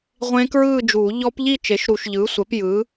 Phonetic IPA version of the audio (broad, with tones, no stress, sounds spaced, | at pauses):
ʁʷ ẽ˦˥ k ɹ ɯː˥˧ d͡ʒ uː˨˩˦ ʎ ɔ˦˥ p ʎ i˥˧ t͡ʃ e˩˥ ʃ ɾ u˨˩˦ ʃ ʎ ɯː˩˥ sʷ ɛ˩˥ p j ɯ˩˥